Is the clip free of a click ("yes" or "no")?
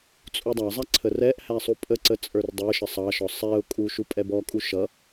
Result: no